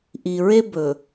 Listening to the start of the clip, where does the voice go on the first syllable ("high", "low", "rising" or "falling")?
low